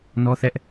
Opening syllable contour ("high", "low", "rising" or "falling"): high